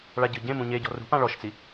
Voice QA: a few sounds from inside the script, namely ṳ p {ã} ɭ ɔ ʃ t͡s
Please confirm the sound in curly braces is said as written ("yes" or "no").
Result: yes